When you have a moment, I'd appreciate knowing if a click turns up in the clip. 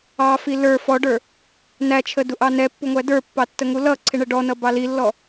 yes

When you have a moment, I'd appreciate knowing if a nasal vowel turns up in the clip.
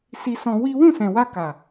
yes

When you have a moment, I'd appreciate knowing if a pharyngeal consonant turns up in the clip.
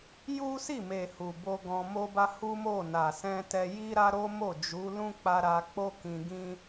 no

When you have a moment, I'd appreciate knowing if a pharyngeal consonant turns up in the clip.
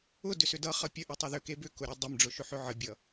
yes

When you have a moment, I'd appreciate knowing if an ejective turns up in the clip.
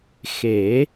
no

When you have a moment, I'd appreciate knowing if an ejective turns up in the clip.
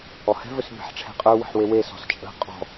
yes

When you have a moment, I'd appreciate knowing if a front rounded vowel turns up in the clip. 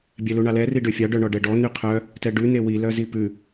yes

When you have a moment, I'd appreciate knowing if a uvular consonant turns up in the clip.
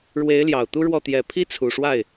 no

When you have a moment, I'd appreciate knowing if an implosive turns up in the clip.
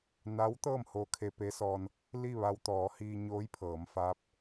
no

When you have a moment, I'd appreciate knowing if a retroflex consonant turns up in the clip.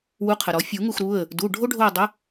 yes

